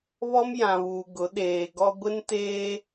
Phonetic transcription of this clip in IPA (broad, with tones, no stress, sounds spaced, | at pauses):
β ɔ˦ m j ã˨ β uː˨ ɡ ʊ˨˦ ɗ eː˨ ɡ ɔ˦ ɡʷ ɪ˦ n t eː˦